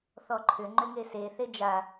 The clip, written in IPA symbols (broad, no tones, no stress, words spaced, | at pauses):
θɔǃʰʏ ŋ͡ǃʏŋese θed͡ʒa